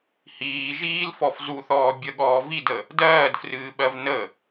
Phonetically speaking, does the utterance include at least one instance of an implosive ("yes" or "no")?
yes